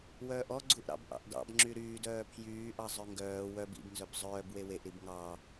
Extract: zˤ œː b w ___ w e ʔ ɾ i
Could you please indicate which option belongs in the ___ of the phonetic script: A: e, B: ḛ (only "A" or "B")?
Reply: A